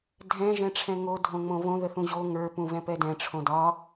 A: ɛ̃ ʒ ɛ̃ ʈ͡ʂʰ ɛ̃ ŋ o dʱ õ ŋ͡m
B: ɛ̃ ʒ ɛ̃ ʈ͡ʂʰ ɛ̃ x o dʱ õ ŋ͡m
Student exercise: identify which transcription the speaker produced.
A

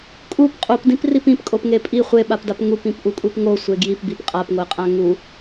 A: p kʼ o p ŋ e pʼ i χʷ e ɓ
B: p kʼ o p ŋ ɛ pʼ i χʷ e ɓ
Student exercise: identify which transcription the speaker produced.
A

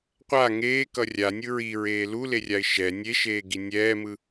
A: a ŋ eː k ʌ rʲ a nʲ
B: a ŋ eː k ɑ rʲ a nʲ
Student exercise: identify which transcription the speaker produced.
A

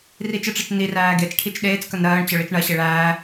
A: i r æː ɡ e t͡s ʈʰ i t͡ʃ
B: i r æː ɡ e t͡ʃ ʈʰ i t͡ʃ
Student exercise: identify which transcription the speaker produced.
A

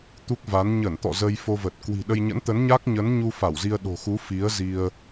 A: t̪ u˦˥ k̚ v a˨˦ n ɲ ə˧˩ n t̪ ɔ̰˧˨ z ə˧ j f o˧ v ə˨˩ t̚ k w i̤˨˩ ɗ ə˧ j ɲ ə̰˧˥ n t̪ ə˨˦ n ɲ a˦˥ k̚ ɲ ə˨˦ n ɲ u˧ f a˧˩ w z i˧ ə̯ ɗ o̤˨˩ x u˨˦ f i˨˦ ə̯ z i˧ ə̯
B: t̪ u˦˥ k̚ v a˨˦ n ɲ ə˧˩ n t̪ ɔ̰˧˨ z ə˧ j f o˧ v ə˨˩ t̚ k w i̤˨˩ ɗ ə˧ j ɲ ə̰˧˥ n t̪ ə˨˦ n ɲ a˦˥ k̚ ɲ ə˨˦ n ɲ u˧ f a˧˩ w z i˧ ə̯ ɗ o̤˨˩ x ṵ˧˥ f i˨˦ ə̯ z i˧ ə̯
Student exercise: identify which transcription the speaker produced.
A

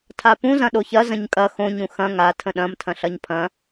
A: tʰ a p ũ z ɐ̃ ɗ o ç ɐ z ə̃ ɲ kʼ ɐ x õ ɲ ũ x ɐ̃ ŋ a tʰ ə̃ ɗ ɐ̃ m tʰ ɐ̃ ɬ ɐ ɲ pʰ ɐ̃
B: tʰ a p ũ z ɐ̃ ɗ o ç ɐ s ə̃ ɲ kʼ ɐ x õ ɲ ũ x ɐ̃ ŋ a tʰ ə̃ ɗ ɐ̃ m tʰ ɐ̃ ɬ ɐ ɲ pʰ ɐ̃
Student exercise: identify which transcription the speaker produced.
A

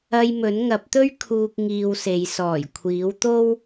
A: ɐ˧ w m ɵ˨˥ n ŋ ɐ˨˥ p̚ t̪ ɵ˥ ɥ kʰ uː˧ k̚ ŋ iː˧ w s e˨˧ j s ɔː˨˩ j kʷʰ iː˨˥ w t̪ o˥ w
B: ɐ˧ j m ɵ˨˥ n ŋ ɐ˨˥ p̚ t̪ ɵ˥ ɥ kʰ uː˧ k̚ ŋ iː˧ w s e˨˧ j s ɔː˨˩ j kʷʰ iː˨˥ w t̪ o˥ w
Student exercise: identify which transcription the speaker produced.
B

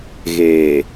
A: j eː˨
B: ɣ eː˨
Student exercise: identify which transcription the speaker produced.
B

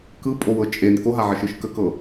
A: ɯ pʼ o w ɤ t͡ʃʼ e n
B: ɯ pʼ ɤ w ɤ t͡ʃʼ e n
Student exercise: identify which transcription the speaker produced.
A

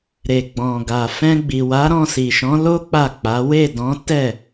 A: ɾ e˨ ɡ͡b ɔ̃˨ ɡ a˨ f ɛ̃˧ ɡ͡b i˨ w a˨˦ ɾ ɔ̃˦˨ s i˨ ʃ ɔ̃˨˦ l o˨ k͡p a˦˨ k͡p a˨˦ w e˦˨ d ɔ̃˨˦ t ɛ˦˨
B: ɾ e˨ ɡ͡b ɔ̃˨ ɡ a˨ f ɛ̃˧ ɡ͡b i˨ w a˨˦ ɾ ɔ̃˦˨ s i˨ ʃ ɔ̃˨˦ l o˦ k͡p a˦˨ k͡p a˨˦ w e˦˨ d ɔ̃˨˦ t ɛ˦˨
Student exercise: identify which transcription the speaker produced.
B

